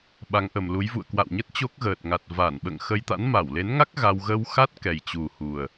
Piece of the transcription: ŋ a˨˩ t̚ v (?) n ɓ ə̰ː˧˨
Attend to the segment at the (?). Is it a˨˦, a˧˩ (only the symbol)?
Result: a˧˩